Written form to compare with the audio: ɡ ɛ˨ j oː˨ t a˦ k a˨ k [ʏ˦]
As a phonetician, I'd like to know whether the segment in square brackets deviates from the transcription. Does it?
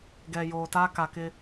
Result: yes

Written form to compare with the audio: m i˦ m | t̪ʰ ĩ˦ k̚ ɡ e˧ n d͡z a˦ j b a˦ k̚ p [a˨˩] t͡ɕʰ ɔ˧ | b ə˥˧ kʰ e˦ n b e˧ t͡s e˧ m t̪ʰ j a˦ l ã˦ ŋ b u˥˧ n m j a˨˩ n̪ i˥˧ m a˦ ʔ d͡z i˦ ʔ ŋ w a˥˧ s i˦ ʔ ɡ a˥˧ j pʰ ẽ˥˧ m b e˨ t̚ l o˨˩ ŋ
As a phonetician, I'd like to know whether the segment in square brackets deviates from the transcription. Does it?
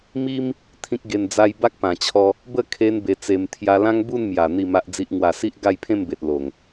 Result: yes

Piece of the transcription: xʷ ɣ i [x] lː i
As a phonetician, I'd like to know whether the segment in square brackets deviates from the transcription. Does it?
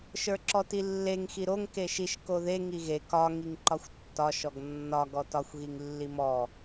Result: yes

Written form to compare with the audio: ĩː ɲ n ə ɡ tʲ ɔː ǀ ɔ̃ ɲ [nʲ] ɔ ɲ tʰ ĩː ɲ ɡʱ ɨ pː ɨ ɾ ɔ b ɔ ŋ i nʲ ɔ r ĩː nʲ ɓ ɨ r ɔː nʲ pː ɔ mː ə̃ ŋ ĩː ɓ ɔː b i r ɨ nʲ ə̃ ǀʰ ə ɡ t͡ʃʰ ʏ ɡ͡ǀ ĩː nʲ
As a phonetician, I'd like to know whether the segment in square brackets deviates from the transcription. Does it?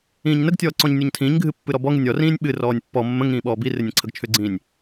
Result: no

